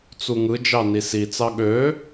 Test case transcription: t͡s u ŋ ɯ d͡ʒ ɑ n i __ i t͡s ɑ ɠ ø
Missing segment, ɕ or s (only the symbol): s